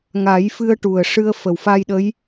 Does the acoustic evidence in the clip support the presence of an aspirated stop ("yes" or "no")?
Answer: no